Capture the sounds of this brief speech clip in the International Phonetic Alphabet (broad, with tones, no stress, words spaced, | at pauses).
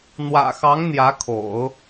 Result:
n̪wä̰˨˩xɑ˧˥ŋ n̪jä˧˥kʰo̰˨˩˦ʊ̯